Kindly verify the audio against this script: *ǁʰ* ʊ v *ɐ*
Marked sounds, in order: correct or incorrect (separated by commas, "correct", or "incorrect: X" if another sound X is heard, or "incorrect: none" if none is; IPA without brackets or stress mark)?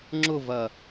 incorrect: ŋ͡ǁ, correct